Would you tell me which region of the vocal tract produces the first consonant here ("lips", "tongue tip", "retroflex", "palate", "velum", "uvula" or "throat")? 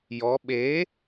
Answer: palate